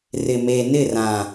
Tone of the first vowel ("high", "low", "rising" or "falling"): low